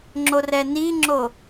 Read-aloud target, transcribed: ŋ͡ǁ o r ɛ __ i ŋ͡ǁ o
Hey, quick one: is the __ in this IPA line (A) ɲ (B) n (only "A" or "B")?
B